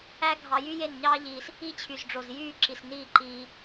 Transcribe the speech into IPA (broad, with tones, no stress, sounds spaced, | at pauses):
æ˦ ɡʱ ɑ˧ j y˦ j e˦˨ n ɲ ɑː˦ ʎ iː˧ s | i˦ t͡ɕʰ y˨ z ɖ͡ʐ o˨ z j yː˦˨ ǁ i˨ s n iː˦˨ ǃ iː˧